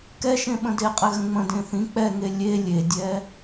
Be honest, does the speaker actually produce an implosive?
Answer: yes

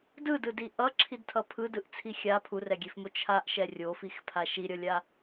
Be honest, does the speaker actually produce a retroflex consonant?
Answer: no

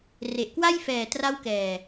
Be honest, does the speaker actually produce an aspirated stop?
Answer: no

